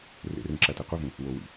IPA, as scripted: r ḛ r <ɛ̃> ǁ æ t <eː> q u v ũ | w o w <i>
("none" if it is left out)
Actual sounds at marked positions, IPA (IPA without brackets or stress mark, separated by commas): ẽ, e, ḭ